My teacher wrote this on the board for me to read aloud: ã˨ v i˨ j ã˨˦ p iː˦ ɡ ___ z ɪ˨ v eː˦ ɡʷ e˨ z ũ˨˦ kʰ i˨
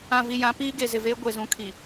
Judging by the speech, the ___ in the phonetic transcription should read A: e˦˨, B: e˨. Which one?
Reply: B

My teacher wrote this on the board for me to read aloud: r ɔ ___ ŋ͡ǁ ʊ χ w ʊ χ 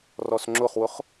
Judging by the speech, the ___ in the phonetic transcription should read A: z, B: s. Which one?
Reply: B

